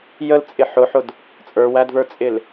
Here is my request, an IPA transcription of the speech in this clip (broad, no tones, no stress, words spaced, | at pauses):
jəlt͡sʼɪ ħʊħʊd | t͡sʼə˞wædvə˞t͡sʼɪl